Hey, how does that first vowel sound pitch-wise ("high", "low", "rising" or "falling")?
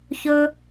high